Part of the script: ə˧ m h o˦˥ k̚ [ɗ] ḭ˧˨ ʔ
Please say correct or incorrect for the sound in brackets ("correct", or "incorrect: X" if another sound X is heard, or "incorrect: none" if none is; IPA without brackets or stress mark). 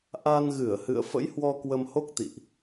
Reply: incorrect: t̪